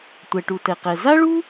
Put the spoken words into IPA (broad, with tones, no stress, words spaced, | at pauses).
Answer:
tʷɛ˩ʈu˩tɛ˩qɛ˩ za˥ɭu˥